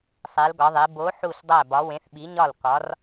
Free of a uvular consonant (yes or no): yes